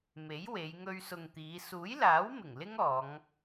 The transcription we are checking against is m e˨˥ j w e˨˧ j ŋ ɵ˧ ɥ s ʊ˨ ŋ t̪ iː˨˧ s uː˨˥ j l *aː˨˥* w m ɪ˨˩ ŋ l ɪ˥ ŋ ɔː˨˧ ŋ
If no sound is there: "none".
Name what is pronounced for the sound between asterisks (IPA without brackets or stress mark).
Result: aː˨˥